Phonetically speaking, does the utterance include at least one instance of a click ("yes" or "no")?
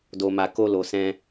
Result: no